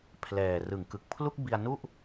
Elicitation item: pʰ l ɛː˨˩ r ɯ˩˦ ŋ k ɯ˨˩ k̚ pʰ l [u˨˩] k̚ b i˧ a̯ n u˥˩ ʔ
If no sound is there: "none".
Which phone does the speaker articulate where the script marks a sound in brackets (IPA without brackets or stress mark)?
u˥˩